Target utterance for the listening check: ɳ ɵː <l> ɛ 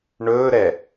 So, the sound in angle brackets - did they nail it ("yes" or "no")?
no